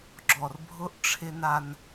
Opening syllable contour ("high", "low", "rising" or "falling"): low